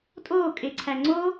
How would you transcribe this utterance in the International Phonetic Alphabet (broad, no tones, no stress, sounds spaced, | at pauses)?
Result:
tʼ oː kʼ e ǀʰ æ ŋ͡ǀ o